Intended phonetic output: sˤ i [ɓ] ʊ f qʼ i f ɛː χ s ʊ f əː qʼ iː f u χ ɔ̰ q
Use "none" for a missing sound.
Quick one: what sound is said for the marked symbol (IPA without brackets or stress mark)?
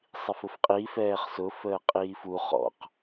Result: f